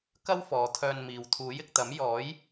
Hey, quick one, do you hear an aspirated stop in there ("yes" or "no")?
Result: yes